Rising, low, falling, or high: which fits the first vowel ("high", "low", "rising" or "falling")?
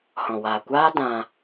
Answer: low